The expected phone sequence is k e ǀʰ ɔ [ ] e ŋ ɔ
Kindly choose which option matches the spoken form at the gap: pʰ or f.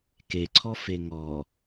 f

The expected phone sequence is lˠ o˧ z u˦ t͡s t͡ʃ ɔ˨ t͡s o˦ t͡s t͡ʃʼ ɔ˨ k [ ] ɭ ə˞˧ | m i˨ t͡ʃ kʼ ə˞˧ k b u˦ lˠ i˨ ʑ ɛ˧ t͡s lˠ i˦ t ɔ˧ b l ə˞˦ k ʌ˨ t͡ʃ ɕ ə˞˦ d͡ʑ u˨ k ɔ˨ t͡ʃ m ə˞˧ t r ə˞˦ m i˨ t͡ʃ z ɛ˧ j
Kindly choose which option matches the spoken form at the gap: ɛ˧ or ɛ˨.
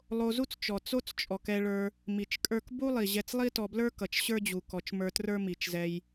ɛ˧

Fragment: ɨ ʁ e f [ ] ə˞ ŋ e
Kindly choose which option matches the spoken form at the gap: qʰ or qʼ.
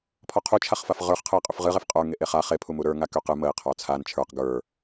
qʼ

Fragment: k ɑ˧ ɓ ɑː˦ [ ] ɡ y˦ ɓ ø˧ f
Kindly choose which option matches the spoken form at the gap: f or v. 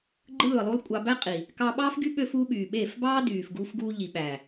f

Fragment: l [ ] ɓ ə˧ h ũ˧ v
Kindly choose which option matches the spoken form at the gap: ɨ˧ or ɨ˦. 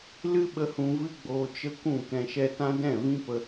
ɨ˦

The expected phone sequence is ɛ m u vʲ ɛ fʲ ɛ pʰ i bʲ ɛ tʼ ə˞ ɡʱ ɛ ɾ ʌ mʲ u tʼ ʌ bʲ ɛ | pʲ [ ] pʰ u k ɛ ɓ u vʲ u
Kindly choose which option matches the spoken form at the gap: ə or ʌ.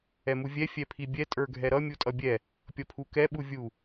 ʌ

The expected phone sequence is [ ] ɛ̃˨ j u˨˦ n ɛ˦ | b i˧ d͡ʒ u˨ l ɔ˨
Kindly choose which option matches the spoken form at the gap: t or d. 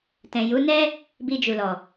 t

